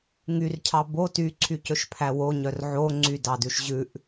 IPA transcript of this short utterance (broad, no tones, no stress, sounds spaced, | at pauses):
ŋ y r cʰ ɑ b o t y ǀʰ y c ɵ ʃ pʰ æ w o ɲ œ r ʕ o ŋ͡ǀ y d ɑ d ʉ ʃ ʑ ʉ ʔ